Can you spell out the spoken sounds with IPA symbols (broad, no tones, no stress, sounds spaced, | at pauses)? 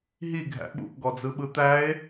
ɦ i ɡʱ æ̰ ɓ ṵ ʔ ɡ ɔ d͡z ɯ ɓ ɯ t̪ æ e̯